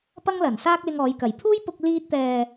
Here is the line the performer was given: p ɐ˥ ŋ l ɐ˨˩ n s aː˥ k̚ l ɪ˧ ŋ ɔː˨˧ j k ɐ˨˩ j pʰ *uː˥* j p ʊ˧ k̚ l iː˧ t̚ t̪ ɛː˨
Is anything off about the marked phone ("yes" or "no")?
no